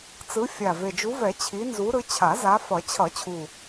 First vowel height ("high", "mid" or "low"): high